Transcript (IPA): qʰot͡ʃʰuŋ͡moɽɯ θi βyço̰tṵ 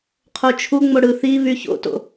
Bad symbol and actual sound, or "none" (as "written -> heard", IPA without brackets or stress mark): ṵ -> o̰